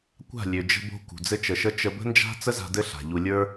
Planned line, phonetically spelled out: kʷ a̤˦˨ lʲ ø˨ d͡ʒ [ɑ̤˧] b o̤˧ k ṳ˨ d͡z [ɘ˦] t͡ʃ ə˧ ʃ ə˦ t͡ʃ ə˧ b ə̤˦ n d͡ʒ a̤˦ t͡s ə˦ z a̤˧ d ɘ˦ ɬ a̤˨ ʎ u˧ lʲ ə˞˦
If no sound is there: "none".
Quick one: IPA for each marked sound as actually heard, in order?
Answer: ə̤˧, ɘ˦

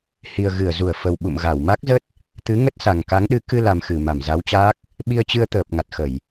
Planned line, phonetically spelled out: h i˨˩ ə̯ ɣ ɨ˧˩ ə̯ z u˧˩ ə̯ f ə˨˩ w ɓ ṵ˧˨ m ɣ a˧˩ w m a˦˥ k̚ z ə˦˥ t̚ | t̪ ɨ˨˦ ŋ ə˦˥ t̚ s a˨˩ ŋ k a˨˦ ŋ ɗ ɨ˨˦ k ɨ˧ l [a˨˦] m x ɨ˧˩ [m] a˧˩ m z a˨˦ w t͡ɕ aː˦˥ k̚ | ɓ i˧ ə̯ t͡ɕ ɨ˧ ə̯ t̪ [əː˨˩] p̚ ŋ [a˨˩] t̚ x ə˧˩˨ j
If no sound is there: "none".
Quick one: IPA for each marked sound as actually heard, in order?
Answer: a˨˩, m, əː˨˩, a˨˩

